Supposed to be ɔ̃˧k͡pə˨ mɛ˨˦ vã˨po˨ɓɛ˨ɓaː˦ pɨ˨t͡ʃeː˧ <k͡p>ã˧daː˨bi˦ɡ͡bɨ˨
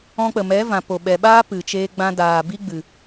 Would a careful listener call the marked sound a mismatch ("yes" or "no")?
yes